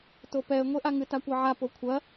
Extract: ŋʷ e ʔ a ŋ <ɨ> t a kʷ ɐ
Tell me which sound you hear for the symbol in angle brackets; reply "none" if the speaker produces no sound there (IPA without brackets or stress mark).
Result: ɨ